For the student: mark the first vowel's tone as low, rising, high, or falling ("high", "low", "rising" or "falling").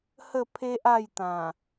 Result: falling